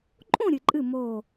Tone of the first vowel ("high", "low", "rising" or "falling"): falling